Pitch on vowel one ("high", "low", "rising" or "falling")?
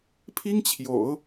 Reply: high